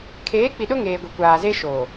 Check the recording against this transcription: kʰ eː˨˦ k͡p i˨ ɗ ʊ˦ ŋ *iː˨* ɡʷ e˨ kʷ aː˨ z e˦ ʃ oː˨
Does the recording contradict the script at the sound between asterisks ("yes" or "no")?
yes